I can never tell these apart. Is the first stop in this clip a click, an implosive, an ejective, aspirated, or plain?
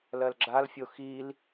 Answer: click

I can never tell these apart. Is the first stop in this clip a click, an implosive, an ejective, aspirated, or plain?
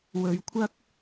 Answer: aspirated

